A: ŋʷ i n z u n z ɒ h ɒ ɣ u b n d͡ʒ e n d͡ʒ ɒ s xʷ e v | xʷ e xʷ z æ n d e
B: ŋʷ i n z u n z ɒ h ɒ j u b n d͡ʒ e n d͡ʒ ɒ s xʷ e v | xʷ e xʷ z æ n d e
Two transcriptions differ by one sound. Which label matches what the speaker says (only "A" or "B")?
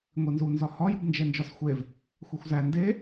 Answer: B